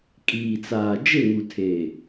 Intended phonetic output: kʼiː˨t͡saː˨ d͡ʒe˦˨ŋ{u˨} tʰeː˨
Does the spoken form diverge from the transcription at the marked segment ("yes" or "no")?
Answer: no